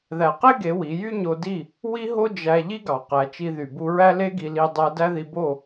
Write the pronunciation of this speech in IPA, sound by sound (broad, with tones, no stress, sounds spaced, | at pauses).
ð æ˨ q e˦ ɡ e˨˦ w i˨˦ j y˦ ɲ o˧ d i˦˨ | w i˦ ɦ o˦ d͡ʒ æ˧ ʎ i˦ ɡ ɑ˨ q æ˨˦ t͡ʃ i˧ ð y˨ b u˧ ɹ æ˦ l e˦ ɡ i˧ l i˧ dˤ æ˧ d æ˦ ð i˧ b o˦˨